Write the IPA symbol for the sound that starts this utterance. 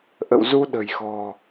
ʔ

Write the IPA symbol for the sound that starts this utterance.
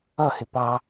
ʌ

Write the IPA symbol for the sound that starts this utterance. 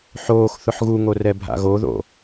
ħ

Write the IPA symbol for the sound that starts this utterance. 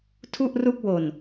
tʰ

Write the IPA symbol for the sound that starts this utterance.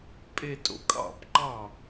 pʼ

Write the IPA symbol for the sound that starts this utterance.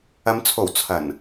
ɐ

